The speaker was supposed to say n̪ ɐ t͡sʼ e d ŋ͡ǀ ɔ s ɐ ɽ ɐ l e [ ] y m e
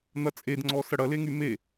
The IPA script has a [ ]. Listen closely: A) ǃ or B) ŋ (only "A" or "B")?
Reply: B